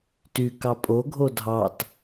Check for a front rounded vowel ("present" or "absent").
present